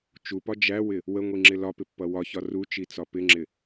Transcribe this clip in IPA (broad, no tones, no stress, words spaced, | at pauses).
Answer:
t͡ʃupɒ d͡ʒæwɪ | wəŋʷiŋ͡ǁɪ lɒpɪpːʌ wɒçɒ rut͡ʃit͡sɒ pɪŋ͡ǁɪ